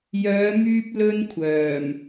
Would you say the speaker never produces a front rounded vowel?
no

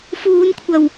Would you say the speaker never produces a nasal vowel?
yes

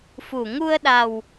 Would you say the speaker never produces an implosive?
no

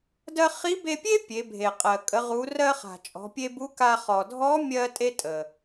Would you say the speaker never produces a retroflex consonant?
yes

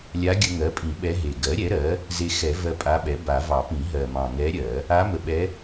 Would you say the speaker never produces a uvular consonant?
yes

